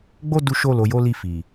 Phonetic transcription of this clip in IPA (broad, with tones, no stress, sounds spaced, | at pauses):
ɡ͡b o˦ d u˧ ʃ o˧ l o˨ j o˨˦ l i˧ f i˨